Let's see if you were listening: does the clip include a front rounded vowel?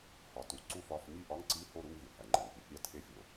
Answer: no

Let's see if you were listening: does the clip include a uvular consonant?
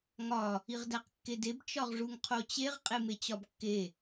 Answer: yes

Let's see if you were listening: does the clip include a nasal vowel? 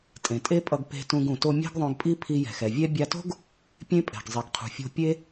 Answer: yes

